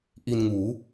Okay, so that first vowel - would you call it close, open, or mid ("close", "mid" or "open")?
close